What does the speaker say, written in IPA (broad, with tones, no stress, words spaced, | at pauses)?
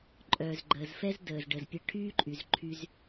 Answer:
ǃʼœː˩zɡ͡ǃəː˩zfɛ˥z dəː˩z ɖə˩zpʲə˧ ʈʰyː˥ǃʼy˩zǃʰy˧z